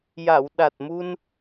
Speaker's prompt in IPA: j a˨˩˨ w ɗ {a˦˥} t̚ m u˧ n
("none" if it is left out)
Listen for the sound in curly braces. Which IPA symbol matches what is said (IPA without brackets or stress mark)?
a˨˩